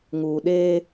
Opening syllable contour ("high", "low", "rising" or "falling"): low